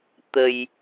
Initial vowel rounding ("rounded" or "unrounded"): unrounded